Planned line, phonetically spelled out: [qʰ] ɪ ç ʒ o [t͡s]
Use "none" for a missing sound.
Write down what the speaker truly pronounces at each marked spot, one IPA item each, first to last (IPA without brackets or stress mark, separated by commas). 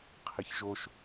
qʰ, ʃ